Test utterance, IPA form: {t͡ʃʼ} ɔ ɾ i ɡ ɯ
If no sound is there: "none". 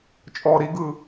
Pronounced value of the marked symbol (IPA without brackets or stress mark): t͡ʃʼ